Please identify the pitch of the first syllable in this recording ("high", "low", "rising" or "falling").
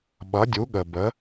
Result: rising